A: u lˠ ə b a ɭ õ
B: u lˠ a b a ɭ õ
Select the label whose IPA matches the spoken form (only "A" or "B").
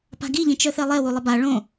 A